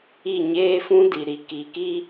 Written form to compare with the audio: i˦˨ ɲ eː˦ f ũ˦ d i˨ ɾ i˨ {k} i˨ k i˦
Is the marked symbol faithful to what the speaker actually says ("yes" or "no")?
yes